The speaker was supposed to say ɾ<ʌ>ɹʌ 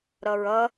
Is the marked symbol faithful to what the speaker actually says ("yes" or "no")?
yes